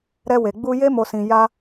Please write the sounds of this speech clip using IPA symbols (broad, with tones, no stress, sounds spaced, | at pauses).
ɾ ɛ˧ w e˨ ɡ͡b u˧ j e˦ m o˧ s ĩ˧ j a˦